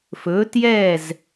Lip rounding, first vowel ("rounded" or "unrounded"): rounded